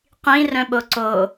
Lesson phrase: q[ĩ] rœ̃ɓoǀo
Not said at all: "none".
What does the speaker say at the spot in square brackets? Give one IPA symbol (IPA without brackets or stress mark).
ĩ